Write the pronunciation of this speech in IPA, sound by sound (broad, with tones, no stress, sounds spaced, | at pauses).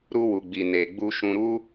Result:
ɾ u˧ w u˨ ɡ͡b i˨ n e˨ ɡ͡b u˧ ʃ ũ˧ ɾ u˦